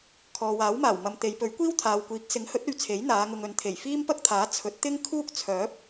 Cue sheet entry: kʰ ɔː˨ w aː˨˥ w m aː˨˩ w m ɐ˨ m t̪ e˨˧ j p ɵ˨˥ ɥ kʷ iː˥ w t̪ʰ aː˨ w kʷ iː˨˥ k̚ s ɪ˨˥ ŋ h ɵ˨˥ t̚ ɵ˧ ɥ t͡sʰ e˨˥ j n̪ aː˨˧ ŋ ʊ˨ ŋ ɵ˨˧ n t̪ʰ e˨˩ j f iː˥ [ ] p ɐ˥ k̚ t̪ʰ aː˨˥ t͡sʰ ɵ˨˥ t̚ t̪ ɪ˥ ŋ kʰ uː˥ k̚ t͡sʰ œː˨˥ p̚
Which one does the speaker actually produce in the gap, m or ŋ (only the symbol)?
m